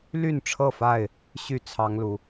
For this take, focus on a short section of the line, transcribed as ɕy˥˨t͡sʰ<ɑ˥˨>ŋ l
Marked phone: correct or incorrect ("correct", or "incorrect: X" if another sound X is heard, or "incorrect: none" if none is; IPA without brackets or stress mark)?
incorrect: ɑ˦